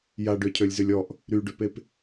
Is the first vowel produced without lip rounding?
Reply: yes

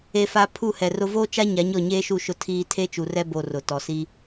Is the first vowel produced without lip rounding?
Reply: yes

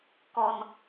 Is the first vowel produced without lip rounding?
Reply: no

